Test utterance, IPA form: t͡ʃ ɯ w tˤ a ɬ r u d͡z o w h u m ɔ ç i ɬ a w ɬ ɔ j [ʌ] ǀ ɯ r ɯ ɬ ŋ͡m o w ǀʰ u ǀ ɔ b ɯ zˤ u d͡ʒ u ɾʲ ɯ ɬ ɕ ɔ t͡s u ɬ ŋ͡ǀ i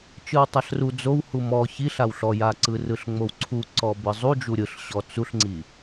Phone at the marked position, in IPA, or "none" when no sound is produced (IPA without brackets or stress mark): a